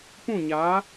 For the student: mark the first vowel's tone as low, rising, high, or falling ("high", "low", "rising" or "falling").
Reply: falling